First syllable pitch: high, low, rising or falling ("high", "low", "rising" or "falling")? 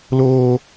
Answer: high